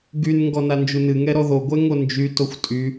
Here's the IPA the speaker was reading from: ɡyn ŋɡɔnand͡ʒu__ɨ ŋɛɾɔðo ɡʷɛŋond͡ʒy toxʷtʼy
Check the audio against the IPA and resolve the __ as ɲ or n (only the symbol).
n